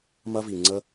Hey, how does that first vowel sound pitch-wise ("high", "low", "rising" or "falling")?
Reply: high